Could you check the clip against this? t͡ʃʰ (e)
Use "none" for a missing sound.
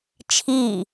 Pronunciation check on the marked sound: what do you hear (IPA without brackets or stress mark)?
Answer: i